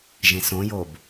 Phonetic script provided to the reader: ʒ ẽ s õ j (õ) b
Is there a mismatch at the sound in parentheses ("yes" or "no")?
yes